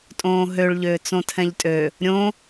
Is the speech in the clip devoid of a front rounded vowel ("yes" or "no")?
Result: no